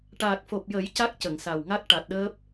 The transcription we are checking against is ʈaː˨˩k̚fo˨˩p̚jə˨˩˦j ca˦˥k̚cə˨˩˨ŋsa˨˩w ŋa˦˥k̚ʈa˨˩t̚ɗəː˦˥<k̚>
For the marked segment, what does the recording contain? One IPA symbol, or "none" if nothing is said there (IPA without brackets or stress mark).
p̚